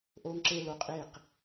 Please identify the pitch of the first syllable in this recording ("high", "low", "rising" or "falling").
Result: high